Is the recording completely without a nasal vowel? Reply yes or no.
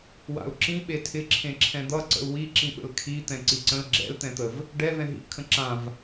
no